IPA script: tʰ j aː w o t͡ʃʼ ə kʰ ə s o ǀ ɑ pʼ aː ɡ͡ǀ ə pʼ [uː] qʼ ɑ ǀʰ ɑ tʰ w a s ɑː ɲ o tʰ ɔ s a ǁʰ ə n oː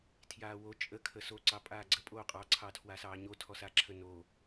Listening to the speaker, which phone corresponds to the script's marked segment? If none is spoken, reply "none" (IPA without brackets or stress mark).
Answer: oː